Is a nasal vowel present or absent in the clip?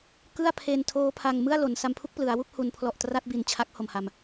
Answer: absent